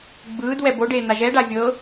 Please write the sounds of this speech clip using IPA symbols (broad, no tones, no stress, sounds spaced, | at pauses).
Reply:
ɡ͡b ɯː d w ɛ b o ɖ eː n̪ a ʒ ɛ ɖ a vʲ ɤː